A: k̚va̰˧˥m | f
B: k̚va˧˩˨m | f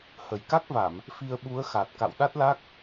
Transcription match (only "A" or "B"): B